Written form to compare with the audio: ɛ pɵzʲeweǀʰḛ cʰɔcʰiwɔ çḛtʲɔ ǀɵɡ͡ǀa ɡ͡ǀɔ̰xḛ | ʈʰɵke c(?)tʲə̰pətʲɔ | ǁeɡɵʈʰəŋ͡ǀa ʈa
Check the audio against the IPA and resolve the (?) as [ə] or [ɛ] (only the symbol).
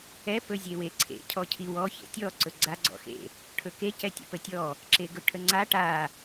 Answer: ɛ